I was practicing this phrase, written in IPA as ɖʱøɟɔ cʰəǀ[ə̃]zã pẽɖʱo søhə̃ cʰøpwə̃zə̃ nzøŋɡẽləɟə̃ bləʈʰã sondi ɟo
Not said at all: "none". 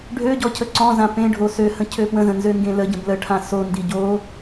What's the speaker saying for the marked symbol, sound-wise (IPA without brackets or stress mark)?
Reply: ɔ̃